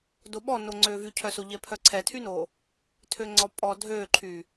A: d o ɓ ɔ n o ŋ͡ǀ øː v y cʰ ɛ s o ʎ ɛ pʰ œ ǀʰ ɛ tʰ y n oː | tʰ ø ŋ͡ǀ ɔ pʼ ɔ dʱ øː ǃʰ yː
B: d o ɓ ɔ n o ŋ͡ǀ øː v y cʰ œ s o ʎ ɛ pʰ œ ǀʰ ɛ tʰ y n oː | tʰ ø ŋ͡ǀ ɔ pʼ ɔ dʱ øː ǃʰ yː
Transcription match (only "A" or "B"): B